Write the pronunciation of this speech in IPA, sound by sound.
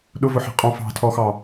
ɗ ʊ v ʊ ħ ɛ̤ qʼ ɔ̃ f ɑ̤ tʰ ɔ x ɑ

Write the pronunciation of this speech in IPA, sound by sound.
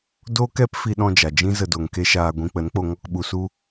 d o˦ k ɛ˦ p f i˦ ɗ ɔ̃˦ d͡ʒ a˨ d͡ʒ ĩ˦ z ə˧ d o˨ ŋ k e˦ ʃ aː˧ ɡʷ ĩ˧ k͡p ə˨˦ n k͡p o˧ ŋ ɔ˧ k ɓ u˨ s u˦

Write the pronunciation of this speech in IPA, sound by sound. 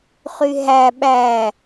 χ y ɦ æ ɓ æ

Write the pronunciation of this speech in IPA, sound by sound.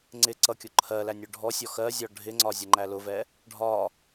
ŋ͡ǀ ɪ ǀ ʌ kʲ ʊ ǃʰ ɜ l æ nʲ ʊ ɖʱ ɔ sʲ ɔ x ɜ zʲ ɒ ɖʱ ɪ ŋ͡ǀ ɒ zʲ ə ŋ͡ǃ æ l ʊ v ɛ | ɖʱ ɒ

